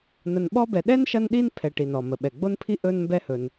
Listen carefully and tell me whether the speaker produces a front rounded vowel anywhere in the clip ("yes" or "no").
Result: no